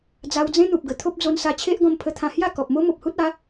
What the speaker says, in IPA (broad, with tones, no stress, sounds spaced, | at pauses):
d͡z a˧ w d͡z ẽ˦ n̪ u˨ p̚ ɡ ə˨˩ t̪ʰ o˦ p̚ d͡z o˧ n s a˧ t͡ɕʰ e˦ ʔ ɡ ɔ̃˧ m pʰ ə˧ t̪ʰ ã˧ h j a˥˧ k ɔ˨ p̚ m o˦ m o˨ p̚ h u˦ t̚ a˨˦